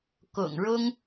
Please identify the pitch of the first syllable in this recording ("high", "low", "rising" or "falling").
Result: low